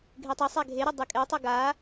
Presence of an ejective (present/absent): present